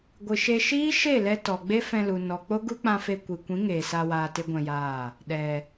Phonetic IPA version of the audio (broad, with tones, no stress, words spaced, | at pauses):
ɡʷɨ˨ʃe˧ ʃiː˦ʃe˦˨lɛ˧ tɔ˨ɡ͡be˦ fɛ̃˧lu˨ nɔ˨ k͡po˦ɡu˦k͡pã˧fe˧ kʷi˨kʷĩ˨˦ ŋeː˨sa˧ waː˧te˦ɡʷɛ̃˧jaː˦˨ | ɗɛ˨